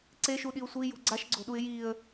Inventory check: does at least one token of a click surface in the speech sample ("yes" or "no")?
yes